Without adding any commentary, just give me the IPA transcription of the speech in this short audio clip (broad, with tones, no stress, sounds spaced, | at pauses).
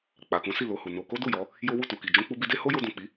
k͡p a˨ k ũ˨˦ s i˦˨ l o˧ h u˨ n o˧ k o˦ d u˦˨ j ɔ˨˦ | j o˦ w u˦˨ t u˨ k i˨ d͡ʒ ũ˧ k͡p u˧ b i˧ d e˦ h o˦ j o˧ d ũ˨ k͡p i˨˦